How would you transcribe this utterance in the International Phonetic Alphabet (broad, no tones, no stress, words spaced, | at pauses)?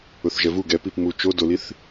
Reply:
ʊθʒɛvu ɡɛpip mu t͡ʃo doliθ